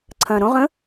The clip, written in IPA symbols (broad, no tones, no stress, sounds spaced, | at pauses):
ǀʰ ɐ̃ ɾ õ ʁ ə̃